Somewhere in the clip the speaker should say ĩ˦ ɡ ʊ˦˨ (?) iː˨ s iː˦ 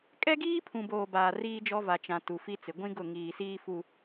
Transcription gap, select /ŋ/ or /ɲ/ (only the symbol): ŋ